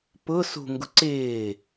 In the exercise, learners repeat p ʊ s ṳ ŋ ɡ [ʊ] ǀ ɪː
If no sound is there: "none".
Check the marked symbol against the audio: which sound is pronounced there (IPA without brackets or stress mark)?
ʊ